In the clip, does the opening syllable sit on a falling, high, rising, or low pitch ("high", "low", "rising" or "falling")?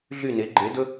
falling